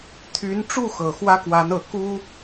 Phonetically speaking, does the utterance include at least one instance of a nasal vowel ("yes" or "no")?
no